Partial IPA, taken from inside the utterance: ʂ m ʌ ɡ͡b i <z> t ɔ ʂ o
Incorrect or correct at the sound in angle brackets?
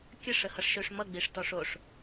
incorrect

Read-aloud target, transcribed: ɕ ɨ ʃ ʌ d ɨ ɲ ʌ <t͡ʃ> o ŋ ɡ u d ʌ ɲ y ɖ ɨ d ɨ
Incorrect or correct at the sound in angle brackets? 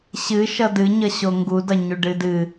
incorrect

